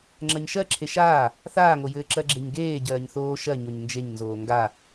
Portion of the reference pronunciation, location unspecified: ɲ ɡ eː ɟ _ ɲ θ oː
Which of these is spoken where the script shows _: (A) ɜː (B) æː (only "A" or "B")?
A